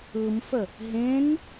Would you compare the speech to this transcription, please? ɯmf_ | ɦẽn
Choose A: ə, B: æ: A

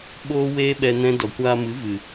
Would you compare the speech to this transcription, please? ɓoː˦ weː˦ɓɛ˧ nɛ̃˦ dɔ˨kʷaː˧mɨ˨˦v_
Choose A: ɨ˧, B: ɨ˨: B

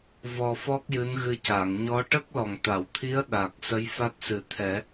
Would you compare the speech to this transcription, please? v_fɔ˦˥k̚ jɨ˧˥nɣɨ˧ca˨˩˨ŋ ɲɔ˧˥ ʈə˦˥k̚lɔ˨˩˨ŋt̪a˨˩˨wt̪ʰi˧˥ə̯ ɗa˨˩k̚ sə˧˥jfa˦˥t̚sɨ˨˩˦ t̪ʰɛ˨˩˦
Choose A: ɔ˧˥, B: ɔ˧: B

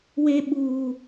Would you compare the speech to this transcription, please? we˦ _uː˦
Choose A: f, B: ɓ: B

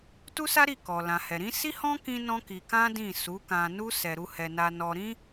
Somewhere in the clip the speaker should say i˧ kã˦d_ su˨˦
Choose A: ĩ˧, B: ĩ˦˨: B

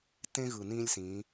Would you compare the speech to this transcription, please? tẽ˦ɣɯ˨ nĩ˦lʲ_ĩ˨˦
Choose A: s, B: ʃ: A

